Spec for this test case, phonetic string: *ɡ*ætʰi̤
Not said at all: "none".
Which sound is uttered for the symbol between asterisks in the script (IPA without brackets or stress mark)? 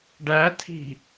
ɖ